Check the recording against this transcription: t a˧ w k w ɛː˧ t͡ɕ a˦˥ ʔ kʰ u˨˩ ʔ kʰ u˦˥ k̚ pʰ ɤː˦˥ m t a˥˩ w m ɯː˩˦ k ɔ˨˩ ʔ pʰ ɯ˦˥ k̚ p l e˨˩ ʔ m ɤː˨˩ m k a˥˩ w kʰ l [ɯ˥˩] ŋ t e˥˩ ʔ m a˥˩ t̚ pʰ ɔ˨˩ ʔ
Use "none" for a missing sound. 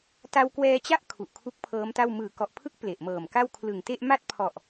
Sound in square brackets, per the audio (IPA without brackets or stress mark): ɯ˨˩